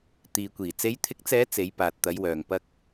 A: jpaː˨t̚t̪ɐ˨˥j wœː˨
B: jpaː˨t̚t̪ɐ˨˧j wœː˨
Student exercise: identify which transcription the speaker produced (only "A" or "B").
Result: B